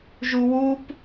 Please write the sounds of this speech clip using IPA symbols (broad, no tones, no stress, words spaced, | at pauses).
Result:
ʒuwup